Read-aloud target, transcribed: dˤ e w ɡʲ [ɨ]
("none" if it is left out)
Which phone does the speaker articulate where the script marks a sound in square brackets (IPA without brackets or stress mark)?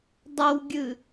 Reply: ɨ